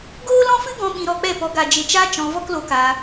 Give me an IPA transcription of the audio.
ɡ oː˦ l ɔ̃˦ f ɨ˦ ɡ ɔ̃˧ ɓ ĩ˧ ɾ ɔ˧ k͡p ɛ˦˨ p ɔ˧ ɡ a˨ d͡ʒ e˨ t͡ʃ a˧ t͡ʃ ɔ̃˧ v ɔ˦ k l o˧ k a˧

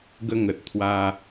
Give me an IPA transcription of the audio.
ɡ ə˧ ŋ ə˨ t̚ t̪ʰ w a˧

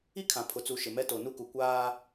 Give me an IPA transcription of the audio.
i˦ kʰ ã˨ pʰ ʊ˨ t͡s u˨ ʃ ɪ˨ m ɛ˦ t o˨ n u˦ k u˨ kʷ aː˦

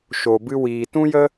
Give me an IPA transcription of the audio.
ʃ o˨ b ɨ˧ w iː˨ t ũ˦ j ə˦

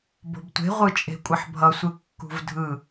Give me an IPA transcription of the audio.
b o̤ b tʷ e̤ ʁʷ ɯ t͡ʃʼ e̤ kʷʼ ɘ ħ bʱ ʌ sʷ ɯ kː ṳ v dʱ ɯ

